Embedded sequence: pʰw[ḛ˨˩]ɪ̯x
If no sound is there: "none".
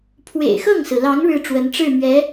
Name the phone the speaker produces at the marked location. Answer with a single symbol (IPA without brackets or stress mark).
ḛ˨˩